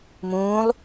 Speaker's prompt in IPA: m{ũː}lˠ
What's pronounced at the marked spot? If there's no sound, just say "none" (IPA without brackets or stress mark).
ũː